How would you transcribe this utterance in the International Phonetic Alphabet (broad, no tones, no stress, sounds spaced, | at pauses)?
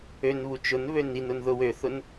ø n β u t͡ʃ ʊ n β ø n i n ʊ n ð ʊ w ø θ ʊ n